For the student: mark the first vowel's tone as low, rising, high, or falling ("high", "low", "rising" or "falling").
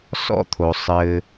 high